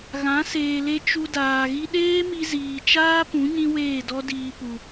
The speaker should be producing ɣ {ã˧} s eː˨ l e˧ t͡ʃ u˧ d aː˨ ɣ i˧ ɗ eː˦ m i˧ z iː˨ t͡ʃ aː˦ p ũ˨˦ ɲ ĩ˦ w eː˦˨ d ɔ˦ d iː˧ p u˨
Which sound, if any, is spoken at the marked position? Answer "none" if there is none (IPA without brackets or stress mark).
ã˨˦